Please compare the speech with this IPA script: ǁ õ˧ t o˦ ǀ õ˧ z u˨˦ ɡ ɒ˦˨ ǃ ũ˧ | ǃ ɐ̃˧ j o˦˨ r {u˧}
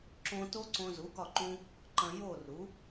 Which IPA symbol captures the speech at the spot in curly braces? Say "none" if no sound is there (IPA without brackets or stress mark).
u˨˦